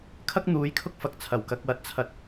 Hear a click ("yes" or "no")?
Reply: no